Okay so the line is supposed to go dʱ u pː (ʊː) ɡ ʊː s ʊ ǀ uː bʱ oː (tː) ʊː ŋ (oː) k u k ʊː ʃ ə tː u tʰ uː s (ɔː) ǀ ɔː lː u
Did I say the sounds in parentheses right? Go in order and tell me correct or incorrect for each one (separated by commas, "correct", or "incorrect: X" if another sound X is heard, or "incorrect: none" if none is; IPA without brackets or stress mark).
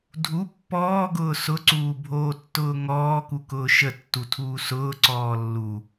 incorrect: ɔː, correct, incorrect: ɔː, incorrect: ʊː